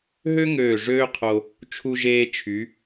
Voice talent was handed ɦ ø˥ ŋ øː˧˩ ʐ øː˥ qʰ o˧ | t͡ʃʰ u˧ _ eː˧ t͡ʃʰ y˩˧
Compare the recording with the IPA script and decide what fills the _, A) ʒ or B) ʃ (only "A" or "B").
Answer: A